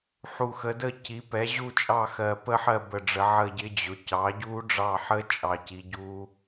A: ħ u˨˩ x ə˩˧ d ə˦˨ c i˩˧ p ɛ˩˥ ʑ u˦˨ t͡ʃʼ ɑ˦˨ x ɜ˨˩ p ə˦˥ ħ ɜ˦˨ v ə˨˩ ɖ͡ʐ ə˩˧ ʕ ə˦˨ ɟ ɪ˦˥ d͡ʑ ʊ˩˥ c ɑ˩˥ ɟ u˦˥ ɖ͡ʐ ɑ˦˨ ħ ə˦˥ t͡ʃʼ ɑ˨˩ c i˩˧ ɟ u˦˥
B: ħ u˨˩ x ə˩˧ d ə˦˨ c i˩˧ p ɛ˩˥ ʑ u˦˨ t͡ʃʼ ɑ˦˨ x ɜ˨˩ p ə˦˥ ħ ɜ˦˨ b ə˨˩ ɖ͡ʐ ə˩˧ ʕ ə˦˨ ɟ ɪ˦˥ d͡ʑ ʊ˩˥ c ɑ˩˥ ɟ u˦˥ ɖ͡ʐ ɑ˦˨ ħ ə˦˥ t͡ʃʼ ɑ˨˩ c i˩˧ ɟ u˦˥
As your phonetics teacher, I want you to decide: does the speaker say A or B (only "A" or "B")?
B